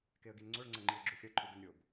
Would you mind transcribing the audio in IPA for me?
keə̯ɡinŋ͡ǀoɭ ŋ͡ǀɐŋ͡ǃiə̯ɡ͡ǁuxʲɐ ǃʰuɡɘnɾʲob

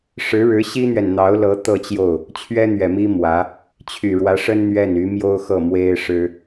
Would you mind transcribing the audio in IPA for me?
ʂɻ̩˧˥ɻɻ̩˧˥ ɕi˥n̪ɥɛ˨nn̪ɑ˧˥ʊ̯lɤ˧˥ t̪ɤ˥˧t͡ɕjo˥˩ʊ̯ | t͡ɕʰɥɛ˥n̪ɥɛ˨˩mi˥ mwä˧˥ | t͡ɕʰy˨˩ɻwä˧˥ʂə˥n n̪ɥɛ˥˩n y˧˥mjo˥ʊ̯xɤ˥˩ mwe˥ɪ̯ʂɻ̩˥

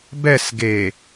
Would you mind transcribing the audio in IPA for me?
bɛs ɡe

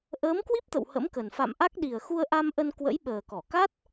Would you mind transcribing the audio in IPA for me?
ʔəː˨˦mkwi˦˥p̚t̪ə̰˧˨w hə̰˧˥mkə˨˩n fa̰˧˨mʔa˦˥k̚ ɗi˨˩ə̯xu˧ə̯ʔa˧mʔə˧n kwə̰˧˥jɓəː˨˩kɔ˧˩ ka˦˥t̚

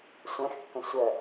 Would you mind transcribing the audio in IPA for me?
sʷɛ̃xkːə̃ sʷœ

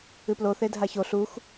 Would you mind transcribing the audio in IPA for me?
ɨplo θedʱaço ɬux

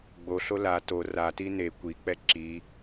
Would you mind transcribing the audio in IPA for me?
ɡ͡boɬo la to rati ne kʷik͡pɛ ǁi

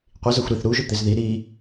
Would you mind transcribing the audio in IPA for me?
qʷi zɐxʷɾiθ ɾu ʒɵt̪ezði ɾi

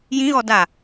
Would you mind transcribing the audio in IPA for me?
jĩɣɔ da

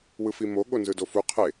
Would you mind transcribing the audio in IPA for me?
wɯfimo ɠonzɯdofu qʰe

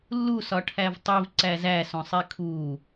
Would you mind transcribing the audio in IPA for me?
lːusɒ ʈʰævtˤiv ǀæzæ sõsˤikʰu

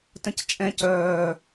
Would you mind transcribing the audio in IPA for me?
tə̃ct͡ʃʼɛ̃ cœː

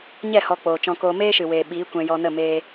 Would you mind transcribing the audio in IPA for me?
ɲɛ˦˨ hɔ˧k͡poː˨t͡ʃɔ̃˧koː˧ meː˦ʃɨ˨weː˨ ɓiː˨˦kʷɛ̃˧ jɔ˧nə˦˨ meː˦

